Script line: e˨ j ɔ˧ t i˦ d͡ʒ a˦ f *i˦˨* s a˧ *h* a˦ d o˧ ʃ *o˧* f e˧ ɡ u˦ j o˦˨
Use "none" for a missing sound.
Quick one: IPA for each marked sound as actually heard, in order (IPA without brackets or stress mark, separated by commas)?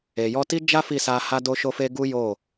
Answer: i˦˨, h, o˧